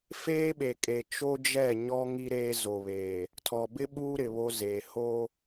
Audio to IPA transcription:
f eː˦ ɓ e˨ kʼ e˨ t͡ʃ o˦ d͡ʒ ɛ˦˨ ɲ ɔ˦ ŋ i˦ ɾ eː˦ z o˨ β eː˨ | tʰ ɔ˨ b ɪ˦ ɓ uː˦ ɾ ɪ˨ β o˦ z eː˨ h o˦

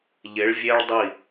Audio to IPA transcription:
ʎ ɪ˨˦ ɭ vʲ e˦ ɭ dˤ i˦˨

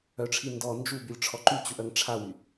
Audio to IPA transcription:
œ ʈ͡ʂʰ i n d ɔ n d͡ʒ u b y lʲ ʈ͡ʂʰ ɔ ǃ y t͡ɕ u ʔ œ ŋ ʈ͡ʂʰ a w y

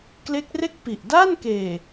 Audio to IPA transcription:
k l e˦˥ k̚ r e˥˩ k̚ p i˨˩ ʔ d aː˥˩ n k eː˨˩

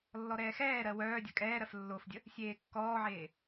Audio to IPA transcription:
lː ɔ ɾ ɛː x ɛː ɾ ɜ w œː dʲ ɐ kʼ ɛː ɾ ɜ f lː o f dʲ ə | sʲ eː kː ɔː ʕ eː

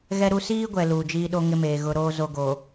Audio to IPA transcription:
ɣ ɛ˦ ɾ u˦ s iː˦ ɡʷ ɛ˨ l uː˨ d͡ʒ iː˦ ɗ o˦ ŋ ɪ˦ m eː˨ ɣ ʊ˦ ɾ oː˦ z o˨ ɡ oː˨

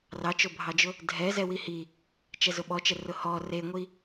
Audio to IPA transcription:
r ɑ t͡ʃ o bʱ ɑ d͡ʒ ʊ | dʱ ɛ z ɛ w i h i | t͡ʃ ɛ z ʊ ɓ ɔ t͡ʃ ɛ r ʊ h ɔ r e ŋʷ i

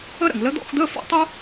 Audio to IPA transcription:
ə˥ ɾ ə̰˨ ŋ l ə˧˥ d̪ ɔ̰˥˨ x d̪ ə˧˥˧ f ɔ̰˥˨ tˤ ʊ˥

